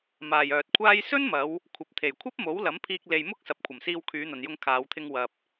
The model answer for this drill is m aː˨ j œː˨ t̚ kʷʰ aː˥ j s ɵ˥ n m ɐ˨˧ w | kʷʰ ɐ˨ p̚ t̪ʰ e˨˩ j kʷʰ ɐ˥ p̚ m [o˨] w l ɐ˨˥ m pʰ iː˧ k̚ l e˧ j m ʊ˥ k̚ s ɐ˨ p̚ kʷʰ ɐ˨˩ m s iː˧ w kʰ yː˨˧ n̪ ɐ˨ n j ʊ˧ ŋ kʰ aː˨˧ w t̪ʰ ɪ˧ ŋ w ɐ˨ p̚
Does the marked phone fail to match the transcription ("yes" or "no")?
yes